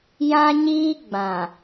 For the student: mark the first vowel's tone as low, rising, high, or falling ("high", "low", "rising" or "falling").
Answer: high